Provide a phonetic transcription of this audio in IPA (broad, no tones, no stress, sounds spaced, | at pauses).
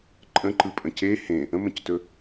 ǃʼ ə̃ ǃ ɯ pʼ ə̃ c e h ẽ | ə̃ m ə̃ c t ɵ